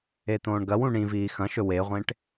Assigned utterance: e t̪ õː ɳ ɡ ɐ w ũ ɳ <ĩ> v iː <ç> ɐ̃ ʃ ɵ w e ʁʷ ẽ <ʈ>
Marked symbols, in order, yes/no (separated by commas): yes, no, yes